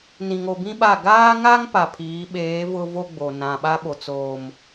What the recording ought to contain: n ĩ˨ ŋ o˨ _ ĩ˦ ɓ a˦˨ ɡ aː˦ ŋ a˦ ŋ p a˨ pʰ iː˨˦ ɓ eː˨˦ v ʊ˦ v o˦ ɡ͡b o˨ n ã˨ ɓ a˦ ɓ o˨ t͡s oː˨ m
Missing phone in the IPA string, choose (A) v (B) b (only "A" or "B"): B